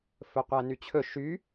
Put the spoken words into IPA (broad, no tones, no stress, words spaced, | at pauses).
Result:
fɵqʷænyt͡ɕʰɵ ʃy